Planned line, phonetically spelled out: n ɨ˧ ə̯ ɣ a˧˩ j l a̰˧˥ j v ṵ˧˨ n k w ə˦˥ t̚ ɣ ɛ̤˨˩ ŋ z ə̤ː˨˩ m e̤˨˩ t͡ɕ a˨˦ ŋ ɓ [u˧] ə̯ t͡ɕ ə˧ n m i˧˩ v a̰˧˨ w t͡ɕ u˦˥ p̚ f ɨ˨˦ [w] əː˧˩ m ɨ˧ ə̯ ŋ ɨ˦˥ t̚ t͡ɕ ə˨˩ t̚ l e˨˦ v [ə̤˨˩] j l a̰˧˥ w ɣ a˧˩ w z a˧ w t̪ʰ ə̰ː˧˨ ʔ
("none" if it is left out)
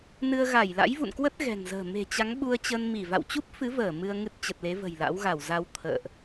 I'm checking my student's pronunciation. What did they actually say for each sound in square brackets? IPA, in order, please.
u˧, v, ə̤˨˩

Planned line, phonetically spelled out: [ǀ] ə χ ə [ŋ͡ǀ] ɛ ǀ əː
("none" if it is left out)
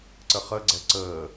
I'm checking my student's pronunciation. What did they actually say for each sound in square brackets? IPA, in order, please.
ǀ, ɡ͡ǀ

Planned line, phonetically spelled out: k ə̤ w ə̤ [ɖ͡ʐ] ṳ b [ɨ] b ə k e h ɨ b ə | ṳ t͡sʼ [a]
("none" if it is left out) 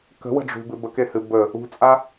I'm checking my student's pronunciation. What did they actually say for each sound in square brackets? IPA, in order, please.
ɖ͡ʐ, ɨ, a

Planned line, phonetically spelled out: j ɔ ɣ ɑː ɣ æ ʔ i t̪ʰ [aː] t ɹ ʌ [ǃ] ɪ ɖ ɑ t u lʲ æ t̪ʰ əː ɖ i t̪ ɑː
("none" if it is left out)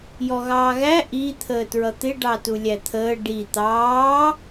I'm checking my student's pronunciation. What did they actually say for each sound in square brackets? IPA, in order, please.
əː, t̪

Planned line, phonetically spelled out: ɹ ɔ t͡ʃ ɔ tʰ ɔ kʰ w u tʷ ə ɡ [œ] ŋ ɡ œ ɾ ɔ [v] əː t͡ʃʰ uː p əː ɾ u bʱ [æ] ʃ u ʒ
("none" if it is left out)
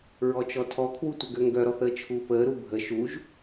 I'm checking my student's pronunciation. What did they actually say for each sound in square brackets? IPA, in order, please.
ø, θ, ə

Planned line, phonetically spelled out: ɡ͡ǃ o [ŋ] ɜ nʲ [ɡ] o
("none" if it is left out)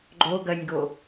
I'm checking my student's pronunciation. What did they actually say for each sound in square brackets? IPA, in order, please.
ɡ, ɡ

